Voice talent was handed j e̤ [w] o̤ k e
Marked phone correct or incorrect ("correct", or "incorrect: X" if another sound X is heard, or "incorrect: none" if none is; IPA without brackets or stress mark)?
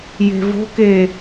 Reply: incorrect: v